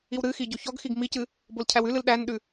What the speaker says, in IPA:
i w ɾ ɨ x i ɟ o ç ɔ ɡ x i ɡ m i c ɨ | b o l cʰ æ w ʉ l ɨ l ɗ æ n ɗ ʉ

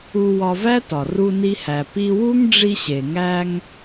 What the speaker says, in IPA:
u˧ w ɒ˧ v æ˥ t ɒ˩ r u˧ n i˧ h æ˩ p i˧ w u˥ ŋ ɖ͡ʐ i˧ ɕ e˩ ŋ æ˧ ŋ

